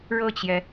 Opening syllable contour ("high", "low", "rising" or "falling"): falling